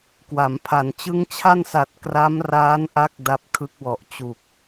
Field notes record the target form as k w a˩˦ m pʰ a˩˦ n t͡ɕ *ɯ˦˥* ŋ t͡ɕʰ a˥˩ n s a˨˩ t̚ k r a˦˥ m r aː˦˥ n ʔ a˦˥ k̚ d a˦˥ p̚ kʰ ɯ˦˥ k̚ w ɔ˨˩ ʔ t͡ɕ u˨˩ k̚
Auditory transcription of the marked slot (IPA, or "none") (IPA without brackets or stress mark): ɯ˦˥